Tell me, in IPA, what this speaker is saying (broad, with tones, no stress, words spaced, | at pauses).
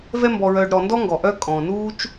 vɛ˥mbɔ˨ɹœː˨ɖ ɾɔ˨ndɔ˥ŋɡɔ˩ ʔœ˥ kʼɔ̃˩nuː˥t͡ʃ